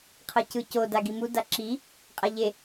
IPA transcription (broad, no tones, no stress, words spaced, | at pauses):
qʰɤcɯco daɡimu daǁi | qʼaʎe